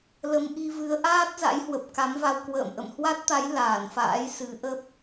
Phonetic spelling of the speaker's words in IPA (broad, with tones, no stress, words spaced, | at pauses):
lə˨˦mʔi˧ vɨ˨˦ə̯ ʔaː˦˥t̚ za̰˧˥jhwə˨˩p̚ka˨˦mva˧w kwə̰ː˧˨m ʔə̰˧˨mhwa˦˥t̚t̪a˨˦j laː˧˩nfa̰ː˧˥j sɨ˨˦ʔə˦˥p̚